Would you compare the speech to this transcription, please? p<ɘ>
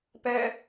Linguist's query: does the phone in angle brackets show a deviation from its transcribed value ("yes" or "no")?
yes